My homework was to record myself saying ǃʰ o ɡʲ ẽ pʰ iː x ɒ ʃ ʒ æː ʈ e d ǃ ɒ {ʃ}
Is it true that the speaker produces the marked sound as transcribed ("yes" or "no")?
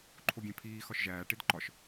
yes